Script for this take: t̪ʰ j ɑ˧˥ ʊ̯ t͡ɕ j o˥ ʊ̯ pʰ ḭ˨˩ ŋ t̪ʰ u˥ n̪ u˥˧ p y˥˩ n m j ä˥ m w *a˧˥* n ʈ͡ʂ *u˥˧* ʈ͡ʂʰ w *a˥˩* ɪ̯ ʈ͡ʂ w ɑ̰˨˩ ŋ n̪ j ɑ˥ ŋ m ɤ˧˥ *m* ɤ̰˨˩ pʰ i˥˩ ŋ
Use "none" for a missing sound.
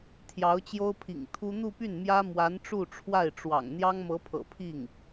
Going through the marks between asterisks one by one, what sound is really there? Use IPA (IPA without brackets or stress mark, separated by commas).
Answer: a˧˥, u˥˧, a˥˩, pʰ